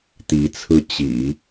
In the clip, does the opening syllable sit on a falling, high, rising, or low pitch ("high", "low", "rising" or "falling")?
rising